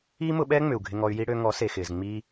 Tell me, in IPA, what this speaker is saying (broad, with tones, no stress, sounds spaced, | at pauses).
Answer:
iː˦ m ʊ˧ ɓ ɛː˦ ŋ͡m ʏ˨ u̯ ɡʱ ɪ˧ ŋ ɔ˧ y̯ j i˦ ɽ ø˧ ŋ ɔ˨˦ s e˨ x ɪː˨ z ŋ͡m iː˦